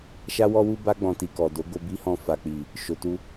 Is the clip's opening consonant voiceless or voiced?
voiceless